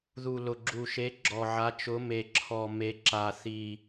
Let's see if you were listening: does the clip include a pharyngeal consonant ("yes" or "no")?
yes